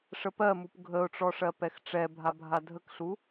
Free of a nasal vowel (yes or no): yes